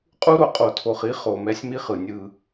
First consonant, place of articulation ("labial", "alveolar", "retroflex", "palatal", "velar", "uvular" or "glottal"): uvular